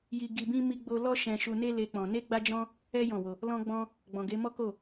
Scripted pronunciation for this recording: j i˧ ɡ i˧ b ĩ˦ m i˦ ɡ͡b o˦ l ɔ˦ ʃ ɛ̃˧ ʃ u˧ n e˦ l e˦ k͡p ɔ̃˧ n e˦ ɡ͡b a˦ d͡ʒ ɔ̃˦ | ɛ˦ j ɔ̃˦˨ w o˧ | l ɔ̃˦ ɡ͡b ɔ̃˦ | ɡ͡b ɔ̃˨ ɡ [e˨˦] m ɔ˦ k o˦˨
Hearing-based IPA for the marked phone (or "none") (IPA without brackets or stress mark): e˨˦